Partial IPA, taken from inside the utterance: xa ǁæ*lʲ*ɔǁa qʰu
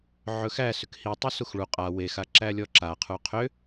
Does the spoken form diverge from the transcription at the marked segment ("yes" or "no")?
no